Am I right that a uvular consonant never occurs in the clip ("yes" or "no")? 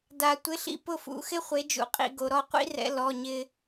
no